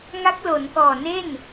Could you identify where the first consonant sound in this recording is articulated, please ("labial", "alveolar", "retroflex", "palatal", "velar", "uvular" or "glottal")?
velar